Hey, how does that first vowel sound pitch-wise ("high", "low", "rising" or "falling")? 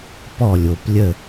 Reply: falling